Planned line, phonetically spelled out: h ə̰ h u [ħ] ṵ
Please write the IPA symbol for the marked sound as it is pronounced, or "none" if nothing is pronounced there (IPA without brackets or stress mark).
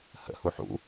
ħ